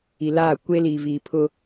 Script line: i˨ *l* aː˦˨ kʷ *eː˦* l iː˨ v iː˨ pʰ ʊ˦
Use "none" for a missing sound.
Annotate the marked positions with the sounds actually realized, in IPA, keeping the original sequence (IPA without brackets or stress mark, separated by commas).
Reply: l, eː˦